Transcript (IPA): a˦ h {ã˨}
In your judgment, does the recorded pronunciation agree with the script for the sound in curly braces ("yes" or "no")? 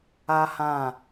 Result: no